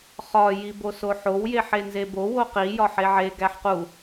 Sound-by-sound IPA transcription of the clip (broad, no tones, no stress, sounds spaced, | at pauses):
χ ɒ j i b o s o ħ o w j e ħ e n z e b o w o q i j ɒ ħ e ʕ e ɡ æ ħ q u